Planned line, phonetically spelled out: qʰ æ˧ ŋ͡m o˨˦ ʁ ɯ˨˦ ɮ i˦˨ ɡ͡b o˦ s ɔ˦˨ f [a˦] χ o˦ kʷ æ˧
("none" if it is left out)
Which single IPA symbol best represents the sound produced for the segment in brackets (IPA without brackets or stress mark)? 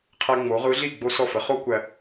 ə˦